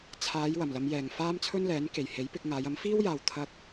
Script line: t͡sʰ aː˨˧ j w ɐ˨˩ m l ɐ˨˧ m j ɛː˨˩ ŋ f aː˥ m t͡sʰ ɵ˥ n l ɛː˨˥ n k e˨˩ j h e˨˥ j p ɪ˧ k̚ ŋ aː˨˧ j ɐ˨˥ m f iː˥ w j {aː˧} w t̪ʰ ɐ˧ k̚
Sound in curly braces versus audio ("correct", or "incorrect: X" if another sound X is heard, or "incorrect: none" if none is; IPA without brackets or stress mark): incorrect: aː˨